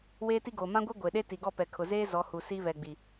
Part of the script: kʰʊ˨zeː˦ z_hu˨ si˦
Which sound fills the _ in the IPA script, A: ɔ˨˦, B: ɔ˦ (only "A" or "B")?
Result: A